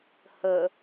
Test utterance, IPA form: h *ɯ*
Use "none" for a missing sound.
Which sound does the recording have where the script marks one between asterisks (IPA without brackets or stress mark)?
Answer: ə